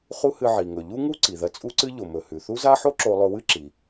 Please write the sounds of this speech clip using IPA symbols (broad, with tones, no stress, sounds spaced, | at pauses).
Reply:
χ u˥ h ɨ˧ ʕ i˩ ŋ ɵ˩ ʎ u˥ ŋ u˥ ǀ i˩ ð ɐ˧ t͡sʼ u˥ ǀ ɨ˥ ʎ o˩ m ɵ˩ h ʉ˩ θ u˥ z a˥ ħ o˥ ǁ o˧ lˠ ɵ˧ w ɨ˥ ǁ i˩